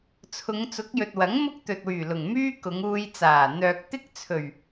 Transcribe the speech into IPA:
t͡sʰ ʊ˨˧ ŋ t͡s ʊ˨˥ k̚ j ɵ˨ t̚ w ɐ˨˥ ŋ m ʊ˥ k̚ t̪ ɵ˨ t̚ w yː˨˩ l ʊ˨˩ ŋ m yː˥ k ʊ˨˧ ŋ uː˧ j t͡s aː˨˩ n̪ œː˨ k̚ t̪ ɪ˥ k̚ t͡sʰ ɵ˨˩ ɥ

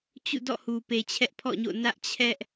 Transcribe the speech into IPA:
t͡ɕ ṵ˦˨ d ɔ̰˦˨ h u˨ p e˨ t͡ɕʰ ɛ˦ ʔ pʰ ɔ̰˦˨ ɲ o̰˦˨ n ä˦ ʔ t͡ɕʰ ɛ˦ ʔ

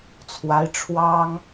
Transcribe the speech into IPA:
t͡sʰ w a˧˥ ɪ̯ ʈ͡ʂʰ w ɑ˥ ŋ

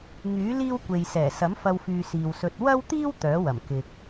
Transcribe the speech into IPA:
ŋ yː˨˥ l iː˥ w kʷ e˨ j s ɛː˨˩ s ɐ˨˥ m f ɐ˧ w f yː˨ s iː˨ w s ɵ˧ t̚ w ɐ˥ w t̪ iː˥ w t̪ œː˨˥ w ɐ˨˩ m k ɪ˧ k̚

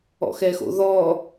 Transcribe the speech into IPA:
ɔ̰ x ɛ x o̰ ð ɔ

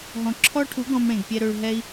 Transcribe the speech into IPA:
ɦ ɔ̃˨ ǁʰ ɔ˦ ʈʰ u˨˦ ɡ ɔ̃˧ m ɽ ẽ˨ ɡ pʲ ɛ˧ ɾ ø˧ ɭ ɦ ɛ˦ i̯

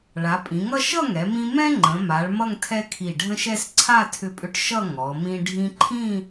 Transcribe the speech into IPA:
ɭ a˩˧ pʼ ĩ˩˧ ŋ ʌ˥˧ ʃ ʌ˥˧ ŋ ɛ˩˧ m ĩ˧ m ɛ̃˥ ŋ͡ǃ ə̃˩˧ m a˩˧ ɭ m ʌ˥˧ ŋ tʰ ɛ˥ kʰ i˧˩ ɖʱ ə̃˥ ʃ ɛ˥ s ǀʰ a˥˧ tʰ ʏ˧ pʼ ʏ˧ ʈ ʃ ʌ˥˧ ŋ ɔ˩˧ m ĩ˧ ɖʱ ĩ˧ ǃʰ ĩ˥˧

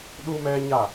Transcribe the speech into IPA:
ɗ u˦ m ɛ˦ ɲ a˦˨

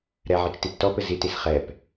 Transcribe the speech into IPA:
ɾ ɛ ʕ ɘ t͡ʃ t i p t ɔ p ɘ z i t i s χ ɛ p

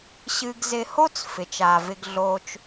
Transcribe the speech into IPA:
ɕ ɨ˧ ɡ z ɪ˧ h o˥ t͡s f ɪ˩ t͡ʃ aː˩ v ɪ˧ ɡ ɮ oː˧ t͡ʃ

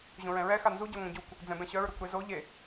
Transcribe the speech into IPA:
ʑ õ ɹ ɛ̃ ɹ ɛ x a n z u ɟ œ ŋʷ ɛ̃ ɟ u kʷ | d͡z ɛ̃ b ɛ̃ ɕ œ ɹ ɾ u kʷ ɾ e z o ʎ e

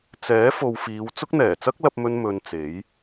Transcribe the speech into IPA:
t͡s ɛː˨˥ f o˨ w f iː˨˧ w t͡s ʊ˥ k̚ n̪ ɛː˨˩ t͡s ɐ˥ k̚ l ɐ˧ p̚ m ɵ˧ n m ɵ˧ n t͡s e˨˥ j

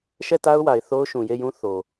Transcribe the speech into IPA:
ʃ ɛ˦˨ t a˦ ʊ̯ w a˨ ɪ̯ θ o˦ ʊ̯ ʃ ũ˨ j e˦˨ j ũ˦ θ o˨

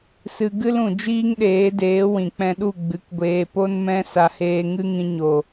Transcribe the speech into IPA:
s ɨ˧ ɡ ɨ˦ l ũ˨ d͡ʒ iː˦ ŋ ɗ eː˨˦ d eː˨˦ w ĩ˨ k͡p ɛ̃˧ ɗ u˦˨ ɡ͡b ɨ˨˦ k ɡʷ eː˧ p o˦ n m ɛ̃˦ s a˧ h eː˧ ŋ ɨ˦ ŋ ĩ˧ ɲ o˨

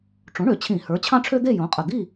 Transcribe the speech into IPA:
ʈ͡ʂ õ˩˥ ɳ ø˩˧ t͡ɕʰ ĩ˧˩˧ h ə˞˩˥ t͡ɕʰ ɑ̃˥ ʈ͡ʂʰ ø˥ d̪ e˥˨ j õ˩˥ qʼ ə˨˩ d̪ i˥˨

